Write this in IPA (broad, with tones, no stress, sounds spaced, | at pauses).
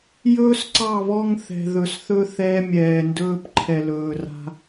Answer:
j ɵː˦ s ǀ ɑ˦˨ β ɔ˦ ŋ θ ɛ̤˨ ð ɵ˨ s θ ɵ˦ θ ɛː˦ mʲ ɛː˨ n d ɵː˦ p ǃʰ ɛ˨ l ɵː˨ r a̤˦